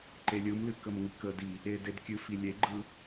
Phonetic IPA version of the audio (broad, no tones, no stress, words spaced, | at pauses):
ǃelʲɯmlɨ kəmŋɨkədi | eded kʲɨfi lʲeɡ͡ǃɯ